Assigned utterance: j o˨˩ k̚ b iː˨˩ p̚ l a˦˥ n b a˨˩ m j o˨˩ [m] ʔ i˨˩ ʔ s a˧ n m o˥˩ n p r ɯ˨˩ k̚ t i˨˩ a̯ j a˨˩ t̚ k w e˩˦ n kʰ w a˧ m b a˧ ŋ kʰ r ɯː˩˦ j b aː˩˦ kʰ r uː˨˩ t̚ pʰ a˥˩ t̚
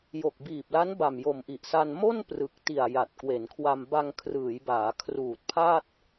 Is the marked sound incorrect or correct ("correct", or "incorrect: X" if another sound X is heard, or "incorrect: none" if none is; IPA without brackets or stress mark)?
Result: correct